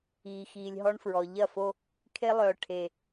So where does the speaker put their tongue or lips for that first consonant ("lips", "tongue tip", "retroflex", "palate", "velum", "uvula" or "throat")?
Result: velum